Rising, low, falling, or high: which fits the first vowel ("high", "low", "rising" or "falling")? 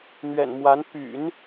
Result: low